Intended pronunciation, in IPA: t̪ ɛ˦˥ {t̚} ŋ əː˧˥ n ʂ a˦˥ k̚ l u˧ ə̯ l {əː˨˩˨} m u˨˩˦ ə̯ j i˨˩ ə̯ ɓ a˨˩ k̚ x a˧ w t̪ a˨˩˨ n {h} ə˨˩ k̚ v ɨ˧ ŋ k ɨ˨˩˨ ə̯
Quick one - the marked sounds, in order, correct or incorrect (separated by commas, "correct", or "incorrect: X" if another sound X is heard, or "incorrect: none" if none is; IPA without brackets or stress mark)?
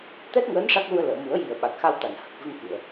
correct, correct, correct